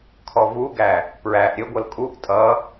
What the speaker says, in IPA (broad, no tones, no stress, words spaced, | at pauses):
kʰɔvuɡæ | pɹæʔ ɾʲəɡʷʌl kʼuʔ tʼʌ